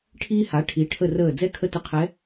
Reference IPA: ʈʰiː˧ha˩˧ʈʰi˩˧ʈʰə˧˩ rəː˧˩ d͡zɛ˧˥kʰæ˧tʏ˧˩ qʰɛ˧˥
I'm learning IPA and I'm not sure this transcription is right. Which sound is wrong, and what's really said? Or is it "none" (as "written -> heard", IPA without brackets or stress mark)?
æ˧ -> ə˧